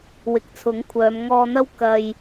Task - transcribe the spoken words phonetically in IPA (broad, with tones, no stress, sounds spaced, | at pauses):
w ɪ˨ k̚ t͡sʰ ʊ˨˥ ŋ kʷʰ œː˨˧ m ŋ ɔː˧ n̪ ɐ˥ w k ɐ˧ j